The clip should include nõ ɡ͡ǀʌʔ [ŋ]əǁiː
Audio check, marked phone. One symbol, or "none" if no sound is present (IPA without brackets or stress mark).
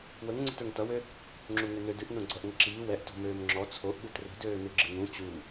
ŋ